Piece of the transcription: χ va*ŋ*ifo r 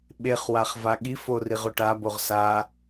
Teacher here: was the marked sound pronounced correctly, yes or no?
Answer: no